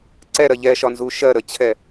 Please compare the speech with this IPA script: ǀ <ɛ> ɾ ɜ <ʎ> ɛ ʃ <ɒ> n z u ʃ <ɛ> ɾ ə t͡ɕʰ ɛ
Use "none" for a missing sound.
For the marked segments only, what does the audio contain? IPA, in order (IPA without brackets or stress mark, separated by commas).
ɛ, ʎ, ɒ, ɜ